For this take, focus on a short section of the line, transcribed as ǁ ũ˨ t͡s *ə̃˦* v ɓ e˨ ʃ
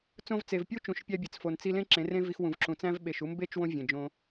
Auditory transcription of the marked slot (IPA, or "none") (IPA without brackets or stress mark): æ̃˦